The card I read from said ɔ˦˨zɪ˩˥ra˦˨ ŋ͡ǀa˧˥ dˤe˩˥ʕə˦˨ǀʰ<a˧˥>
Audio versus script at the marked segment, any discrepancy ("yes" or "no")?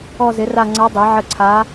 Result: no